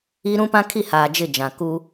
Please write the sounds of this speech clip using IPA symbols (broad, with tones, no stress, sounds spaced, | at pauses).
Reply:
i˦ ɾ ũ˦ p ã˦ kʰ i˦˨ h aː˨ d͡ʒ ɪ˦˨ d͡ʒ ã˨ k u˦